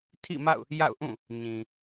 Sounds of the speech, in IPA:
tʰ ḭ˦˨ m a̰˦˨ ʊ̯ | j a̰˦˨ ʊ̯ ʔ ũ˦˨ | ɲ ĩ˨

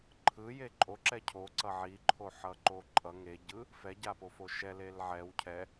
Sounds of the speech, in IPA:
ǃʰ ɯ j e ǃʼ o ǁ ɛ cʰ o ǀ ʌ ʕ i ǃʰ o ħ ʌ ǃ o ǃʼ ʌ ŋ e ɟ ɯ | f ɛ ɟ a p o f o ʃ ɛ l e l ʕ ɛ w cʰ ɛ

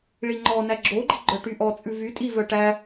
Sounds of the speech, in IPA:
ɭ i ŋ͡ǃ ɔ n æ ɡ͡ǁ o ɡ͡ǃ i ɡ͡ǃ œ ʈ y ʔ ɔ t͡sʼ ʉ v y tʼ i v œ ʈ æ

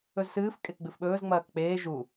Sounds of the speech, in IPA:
ɵ z s ɨː f kʼ e k ɡ͡b ɨ f ɓ ɵː z ŋ͡m ɐː k k͡p eː ʒ u

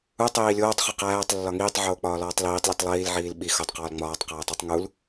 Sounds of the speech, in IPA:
u tˤ iː lʲ oː tˤ χ u q æː tˤ lː ɒ ŋ iː tˤ ʕ oː k͡p ɒː l ɒː tˤ l iː tˤ lʲ u tˤ lˠ iː l ʕ iː l ɓ i x o tˤ q ɒː l ŋ͡m ɒː tˤ q æː tˤ u tˤ ŋ u l

